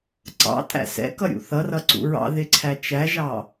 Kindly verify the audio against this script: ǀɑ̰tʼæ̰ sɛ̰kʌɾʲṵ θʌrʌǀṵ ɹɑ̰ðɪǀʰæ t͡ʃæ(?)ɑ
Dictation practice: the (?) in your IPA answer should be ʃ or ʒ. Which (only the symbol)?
ʒ